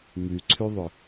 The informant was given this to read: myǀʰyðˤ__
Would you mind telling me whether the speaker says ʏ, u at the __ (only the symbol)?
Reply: ʏ